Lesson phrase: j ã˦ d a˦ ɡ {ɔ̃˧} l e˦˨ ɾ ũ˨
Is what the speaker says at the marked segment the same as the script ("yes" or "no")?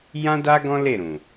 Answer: no